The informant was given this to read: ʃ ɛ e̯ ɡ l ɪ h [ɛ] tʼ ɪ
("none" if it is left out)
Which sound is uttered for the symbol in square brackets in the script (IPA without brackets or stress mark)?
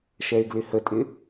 ə